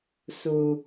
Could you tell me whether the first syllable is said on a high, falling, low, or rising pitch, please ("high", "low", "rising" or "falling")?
low